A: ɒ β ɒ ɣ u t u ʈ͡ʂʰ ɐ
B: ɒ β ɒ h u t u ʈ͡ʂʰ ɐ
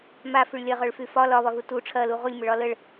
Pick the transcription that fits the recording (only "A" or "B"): A